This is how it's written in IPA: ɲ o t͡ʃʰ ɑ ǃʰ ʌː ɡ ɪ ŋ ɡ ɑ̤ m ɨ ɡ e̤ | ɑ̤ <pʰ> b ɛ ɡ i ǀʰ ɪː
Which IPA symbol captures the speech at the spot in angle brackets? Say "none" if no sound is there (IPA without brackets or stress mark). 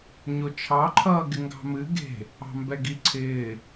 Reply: m